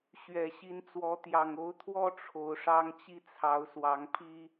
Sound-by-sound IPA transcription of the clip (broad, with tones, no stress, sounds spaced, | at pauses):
ɕ ɥ ɛ˨˩ ɕ i˨˦ n t͡s w ɔ˨˦ t̪ j ɑ˨˩ ŋ o˨˦ ʊ̯ t̪ʰ w ɔ˦ ʈ͡ʂʰ o˨˦ ʊ̯ ʂ ɑ˦ ŋ t͡ɕ i˦ t͡sʰ ɑ˨˦ ʊ̯ s w ɑ˨˦ ŋ pʰ i˦